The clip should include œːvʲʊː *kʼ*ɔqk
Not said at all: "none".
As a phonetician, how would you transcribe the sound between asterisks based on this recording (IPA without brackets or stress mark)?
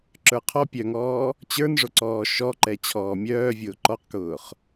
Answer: ǃ